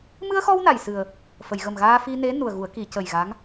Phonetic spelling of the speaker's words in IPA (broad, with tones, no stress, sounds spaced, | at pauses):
m ɨ˧ ə̯ x ɔ˧ w n a˨˩ j s ɨ˨˩ ə̯ | f ə˨˩˨ j ɣ ə˨˩ m ɣ aː˧ f i˧ n e˧˥ n u˨˩ ə̯ ɣ u˨˩˦ ə̯ k i˨˩˨ c ə˨˩ j ɣ a˧˥ ŋ